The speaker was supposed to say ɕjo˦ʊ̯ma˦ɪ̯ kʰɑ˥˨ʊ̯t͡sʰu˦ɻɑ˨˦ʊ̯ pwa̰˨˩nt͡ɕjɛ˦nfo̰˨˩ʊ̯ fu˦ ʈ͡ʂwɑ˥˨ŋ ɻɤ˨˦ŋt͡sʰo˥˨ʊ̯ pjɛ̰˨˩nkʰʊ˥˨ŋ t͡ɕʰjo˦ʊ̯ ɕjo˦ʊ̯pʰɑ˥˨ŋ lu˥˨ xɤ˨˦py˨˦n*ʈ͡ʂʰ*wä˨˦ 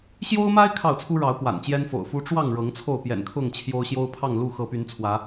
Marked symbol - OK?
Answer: no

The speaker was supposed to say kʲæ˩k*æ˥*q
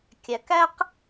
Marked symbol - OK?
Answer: yes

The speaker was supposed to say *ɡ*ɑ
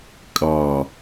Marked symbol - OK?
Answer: no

